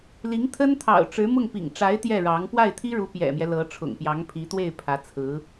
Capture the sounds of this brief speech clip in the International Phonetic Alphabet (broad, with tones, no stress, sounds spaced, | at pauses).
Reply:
l i˧˥ ŋ t̪ʰ ə˥ n t̪ʰ ɑ̰˨˩ ʊ̯ ʈ͡ʂ ɻ̩˧˥ m ʊ˥˩ ŋ p ḭ˨˩ ŋ ʈ͡ʂ a˧˥ ɪ̯ t̪ j ɛ˥˩ ɻ ɑ˧˥ ŋ p w a˥˩ ɪ̯ t̪ʰ i˥ ɻ u˧˥ p j ɛ̰˨˩ m j ɛ˦ l ɤ˧˥ ʈ͡ʂʰ ʊ̰˨˩ ŋ p j ɑ˧˥ ŋ pʰ i˧˥ t̪ w e˥˩ ɪ̯ pʰ ä˧˥ t͡sʰ ɹ̩˧˥